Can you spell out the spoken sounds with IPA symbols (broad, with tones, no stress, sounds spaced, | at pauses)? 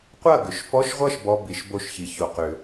qʷ ɐ˥˩ ɡ ʏ˨ ʃ f ɔ˧˥˧ ʃ ʁʷ ʌ˥˩ ʃ b ɔ˧˥˧ b i˨˩˦ ʃ b o˥˩ ʃ ç i˨ ç o˨ q ʏ˨˩˦